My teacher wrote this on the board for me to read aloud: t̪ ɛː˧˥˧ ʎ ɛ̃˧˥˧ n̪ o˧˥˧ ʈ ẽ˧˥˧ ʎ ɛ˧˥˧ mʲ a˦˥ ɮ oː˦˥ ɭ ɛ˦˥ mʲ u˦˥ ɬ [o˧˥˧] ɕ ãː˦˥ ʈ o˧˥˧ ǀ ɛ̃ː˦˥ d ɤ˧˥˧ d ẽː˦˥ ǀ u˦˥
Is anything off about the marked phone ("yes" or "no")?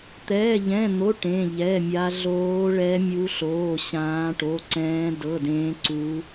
yes